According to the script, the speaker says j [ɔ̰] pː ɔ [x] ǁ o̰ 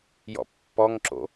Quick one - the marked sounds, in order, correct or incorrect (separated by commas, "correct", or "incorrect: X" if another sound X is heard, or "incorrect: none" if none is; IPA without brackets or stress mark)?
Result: correct, incorrect: ŋ